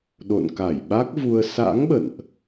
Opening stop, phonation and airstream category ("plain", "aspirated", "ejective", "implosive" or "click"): implosive